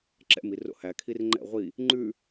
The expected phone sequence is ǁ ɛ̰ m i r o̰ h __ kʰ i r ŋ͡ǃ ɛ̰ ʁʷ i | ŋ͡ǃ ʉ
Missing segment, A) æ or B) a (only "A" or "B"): A